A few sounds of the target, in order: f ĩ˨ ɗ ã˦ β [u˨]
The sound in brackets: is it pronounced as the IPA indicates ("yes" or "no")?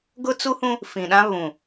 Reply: no